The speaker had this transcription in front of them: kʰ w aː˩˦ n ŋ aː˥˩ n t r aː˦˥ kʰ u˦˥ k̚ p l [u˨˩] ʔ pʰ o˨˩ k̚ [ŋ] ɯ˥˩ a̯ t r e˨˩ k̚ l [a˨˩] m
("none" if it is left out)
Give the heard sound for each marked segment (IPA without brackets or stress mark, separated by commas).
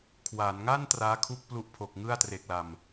u˦˥, ŋ, a˨˩